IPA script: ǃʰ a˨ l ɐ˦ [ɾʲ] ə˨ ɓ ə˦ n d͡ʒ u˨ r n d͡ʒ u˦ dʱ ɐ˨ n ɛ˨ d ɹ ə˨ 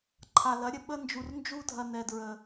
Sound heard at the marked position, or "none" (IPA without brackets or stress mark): ɾʲ